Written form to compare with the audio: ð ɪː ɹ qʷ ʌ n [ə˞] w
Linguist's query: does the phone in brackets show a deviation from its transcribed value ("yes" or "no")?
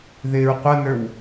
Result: no